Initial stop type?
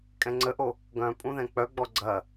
ejective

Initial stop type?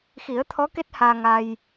aspirated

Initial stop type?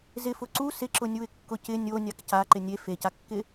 click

